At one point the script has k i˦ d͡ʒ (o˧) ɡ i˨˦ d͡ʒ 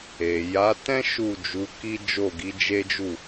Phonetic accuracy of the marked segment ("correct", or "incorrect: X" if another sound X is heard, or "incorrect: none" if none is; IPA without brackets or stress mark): incorrect: o˦˨